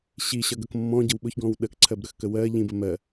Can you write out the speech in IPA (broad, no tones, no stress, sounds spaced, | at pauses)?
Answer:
ɕ i ɕ ʌ ɡ ʌ k mː ɔ̃ ɟ ə w ɓ ʊ ç ɡ ɔ̃ w ɗ ə k ǀʰ ɜ b ɾ ə x k ə w ɜ ʎ ĩ b ə m ɜ